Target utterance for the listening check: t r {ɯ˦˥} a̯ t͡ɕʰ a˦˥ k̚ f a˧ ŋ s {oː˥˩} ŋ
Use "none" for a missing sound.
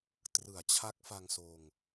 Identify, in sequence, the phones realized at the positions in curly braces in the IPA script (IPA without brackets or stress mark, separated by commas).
ɯ˩˦, oː˧